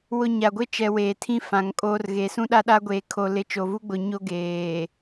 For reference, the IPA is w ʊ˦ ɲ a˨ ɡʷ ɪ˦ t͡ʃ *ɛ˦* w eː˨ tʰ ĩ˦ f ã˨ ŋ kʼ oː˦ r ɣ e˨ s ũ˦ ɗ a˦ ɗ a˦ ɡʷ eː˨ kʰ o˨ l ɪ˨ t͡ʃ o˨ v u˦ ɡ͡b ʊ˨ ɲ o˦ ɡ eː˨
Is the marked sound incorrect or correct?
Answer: incorrect